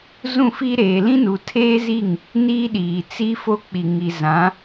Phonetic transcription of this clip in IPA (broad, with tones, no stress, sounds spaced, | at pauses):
z ũ˦˨ f i˦ ɾ eː˨ l ĩ˦ n u˨ tʰ eː˦ z i˦˨ ŋ | n iː˦ ɗ iː˨ t͡s i˦ f o˦ k͡p i˨ ŋ i˨ z ã˨˦